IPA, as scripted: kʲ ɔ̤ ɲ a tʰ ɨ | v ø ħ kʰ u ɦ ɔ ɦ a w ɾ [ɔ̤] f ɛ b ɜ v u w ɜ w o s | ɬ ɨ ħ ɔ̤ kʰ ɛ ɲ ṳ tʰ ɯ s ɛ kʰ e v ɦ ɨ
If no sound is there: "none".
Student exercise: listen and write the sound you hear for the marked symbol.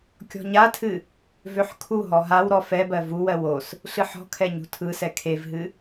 ɔ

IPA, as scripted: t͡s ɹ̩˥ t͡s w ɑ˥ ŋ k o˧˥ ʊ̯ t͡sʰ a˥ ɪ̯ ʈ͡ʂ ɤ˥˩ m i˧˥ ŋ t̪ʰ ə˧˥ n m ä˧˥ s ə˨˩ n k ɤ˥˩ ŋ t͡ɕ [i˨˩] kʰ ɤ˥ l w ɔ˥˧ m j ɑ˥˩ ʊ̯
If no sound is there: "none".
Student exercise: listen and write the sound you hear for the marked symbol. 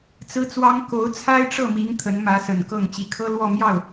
i˨˩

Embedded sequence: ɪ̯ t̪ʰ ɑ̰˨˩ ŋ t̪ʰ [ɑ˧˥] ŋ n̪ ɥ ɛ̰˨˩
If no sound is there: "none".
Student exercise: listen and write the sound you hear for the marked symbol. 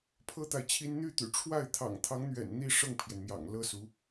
ɑ˧˥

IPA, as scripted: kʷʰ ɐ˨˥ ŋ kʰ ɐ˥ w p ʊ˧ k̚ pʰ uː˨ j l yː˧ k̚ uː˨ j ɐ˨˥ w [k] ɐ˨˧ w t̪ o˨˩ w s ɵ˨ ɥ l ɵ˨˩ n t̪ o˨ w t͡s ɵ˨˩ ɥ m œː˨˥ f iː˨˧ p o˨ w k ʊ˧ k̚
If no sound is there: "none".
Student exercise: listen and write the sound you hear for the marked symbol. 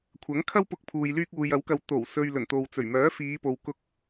k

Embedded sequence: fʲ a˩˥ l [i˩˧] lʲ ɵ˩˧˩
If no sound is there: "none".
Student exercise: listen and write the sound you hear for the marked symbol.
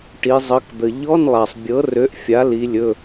i˩˧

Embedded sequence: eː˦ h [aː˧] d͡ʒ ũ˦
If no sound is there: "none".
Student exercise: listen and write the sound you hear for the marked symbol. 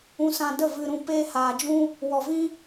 aː˧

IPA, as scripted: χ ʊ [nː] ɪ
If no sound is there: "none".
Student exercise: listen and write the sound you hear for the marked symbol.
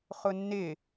nː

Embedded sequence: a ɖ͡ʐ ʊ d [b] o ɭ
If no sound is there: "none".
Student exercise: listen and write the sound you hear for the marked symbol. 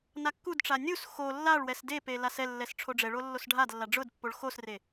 pː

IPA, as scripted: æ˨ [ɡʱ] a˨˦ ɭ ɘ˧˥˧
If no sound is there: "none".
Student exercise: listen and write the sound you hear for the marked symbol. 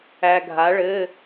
ɡʱ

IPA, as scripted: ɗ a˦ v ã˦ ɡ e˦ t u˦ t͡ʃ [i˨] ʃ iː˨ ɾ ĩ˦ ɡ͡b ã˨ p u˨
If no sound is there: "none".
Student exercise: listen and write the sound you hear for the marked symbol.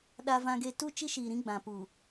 i˦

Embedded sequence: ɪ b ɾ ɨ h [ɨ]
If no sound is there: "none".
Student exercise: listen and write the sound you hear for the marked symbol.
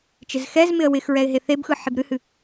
ɨ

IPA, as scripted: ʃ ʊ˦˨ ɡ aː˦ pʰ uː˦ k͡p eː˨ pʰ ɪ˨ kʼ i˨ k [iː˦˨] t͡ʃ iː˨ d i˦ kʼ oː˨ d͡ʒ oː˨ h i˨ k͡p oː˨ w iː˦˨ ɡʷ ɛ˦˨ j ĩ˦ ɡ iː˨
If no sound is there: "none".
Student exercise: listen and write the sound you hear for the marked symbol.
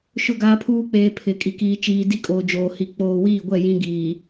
iː˨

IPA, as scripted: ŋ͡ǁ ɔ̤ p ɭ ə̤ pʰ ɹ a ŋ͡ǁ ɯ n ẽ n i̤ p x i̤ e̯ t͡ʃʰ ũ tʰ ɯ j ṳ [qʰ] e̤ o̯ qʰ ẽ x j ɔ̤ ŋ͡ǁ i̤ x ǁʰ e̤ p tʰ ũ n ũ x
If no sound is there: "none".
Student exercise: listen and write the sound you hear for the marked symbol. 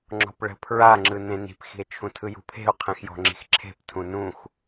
pʰ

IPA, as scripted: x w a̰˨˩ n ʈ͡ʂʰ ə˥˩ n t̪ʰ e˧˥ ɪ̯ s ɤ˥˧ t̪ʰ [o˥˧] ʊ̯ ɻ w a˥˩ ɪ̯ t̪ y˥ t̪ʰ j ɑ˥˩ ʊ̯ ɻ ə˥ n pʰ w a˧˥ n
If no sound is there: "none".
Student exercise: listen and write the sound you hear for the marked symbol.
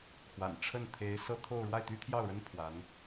o˥˧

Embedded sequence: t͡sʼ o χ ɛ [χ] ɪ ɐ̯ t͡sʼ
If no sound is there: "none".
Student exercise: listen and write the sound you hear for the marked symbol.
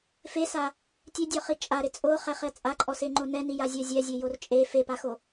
χ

